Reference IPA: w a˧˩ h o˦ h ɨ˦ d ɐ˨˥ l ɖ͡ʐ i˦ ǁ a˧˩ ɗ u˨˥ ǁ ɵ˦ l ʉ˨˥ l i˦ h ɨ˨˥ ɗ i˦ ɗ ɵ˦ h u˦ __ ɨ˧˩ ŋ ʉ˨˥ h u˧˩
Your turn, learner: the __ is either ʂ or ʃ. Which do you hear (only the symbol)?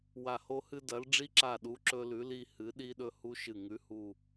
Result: ʃ